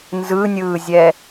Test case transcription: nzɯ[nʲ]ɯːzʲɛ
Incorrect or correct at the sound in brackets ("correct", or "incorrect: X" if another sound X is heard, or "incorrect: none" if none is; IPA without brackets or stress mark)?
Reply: correct